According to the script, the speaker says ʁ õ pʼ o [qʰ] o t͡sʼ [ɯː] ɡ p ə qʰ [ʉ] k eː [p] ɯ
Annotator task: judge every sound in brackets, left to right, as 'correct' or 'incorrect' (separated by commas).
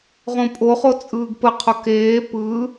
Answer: incorrect, correct, incorrect, correct